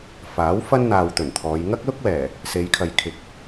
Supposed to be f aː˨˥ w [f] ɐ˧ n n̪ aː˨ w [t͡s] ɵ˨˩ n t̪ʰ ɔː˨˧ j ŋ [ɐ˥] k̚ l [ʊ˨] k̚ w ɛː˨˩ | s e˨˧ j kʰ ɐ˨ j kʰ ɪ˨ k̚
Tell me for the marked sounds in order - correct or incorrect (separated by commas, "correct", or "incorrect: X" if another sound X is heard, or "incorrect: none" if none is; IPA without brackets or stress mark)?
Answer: correct, incorrect: t̪, correct, incorrect: ʊ˥